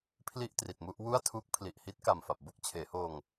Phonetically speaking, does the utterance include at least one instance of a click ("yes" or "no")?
no